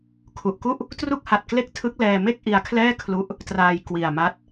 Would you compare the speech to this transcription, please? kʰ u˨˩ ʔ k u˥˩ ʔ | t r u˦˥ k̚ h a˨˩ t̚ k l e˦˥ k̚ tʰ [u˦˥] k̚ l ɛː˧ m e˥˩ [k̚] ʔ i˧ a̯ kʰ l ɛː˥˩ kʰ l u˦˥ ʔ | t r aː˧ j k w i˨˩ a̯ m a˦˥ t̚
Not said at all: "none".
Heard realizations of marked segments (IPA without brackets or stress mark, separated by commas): ɯ˦˥, k̚